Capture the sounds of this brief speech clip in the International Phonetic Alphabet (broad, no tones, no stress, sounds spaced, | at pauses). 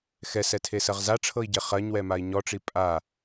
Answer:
x ɛ s ɛ tʰ e s ɜ ʁ z a ʈ͡ʂʰ ɤ i̯ ɟ e χ ɜ ɲ w ɛ m a i̯ ɲ ɔ ʈ͡ʂ i pʼ a